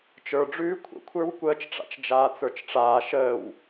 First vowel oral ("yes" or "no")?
yes